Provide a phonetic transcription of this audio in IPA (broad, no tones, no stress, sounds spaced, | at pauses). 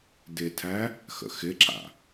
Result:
d ɪ tʰ æ | x ə̰ x ɪ ǁ a̰